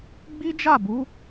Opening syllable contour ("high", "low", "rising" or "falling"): high